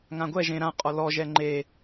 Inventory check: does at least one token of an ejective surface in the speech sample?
yes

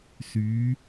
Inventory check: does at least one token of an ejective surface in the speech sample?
no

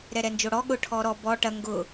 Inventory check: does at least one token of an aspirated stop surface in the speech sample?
yes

